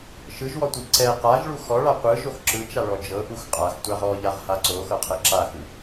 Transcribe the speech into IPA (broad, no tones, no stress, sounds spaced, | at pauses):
ʃ ɯ ʒ w ɔ tʷ i ǀ ɛ q a ʒ ɭ u x ɔ ɭ a qʷ ɯ ʒ o x ǁ ɯ t͡ʃ a ɭ ɔ d͡ʒ ɤ ʔ u x qʼ a x tʷ a ʁ ɔ ʎ a ʁ h a ǀ o x ɤ qʰ ɛ ǁ a x ɯ